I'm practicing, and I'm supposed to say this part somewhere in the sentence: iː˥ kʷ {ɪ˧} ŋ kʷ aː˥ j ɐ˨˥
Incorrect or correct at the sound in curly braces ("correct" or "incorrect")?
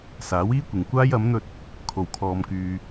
incorrect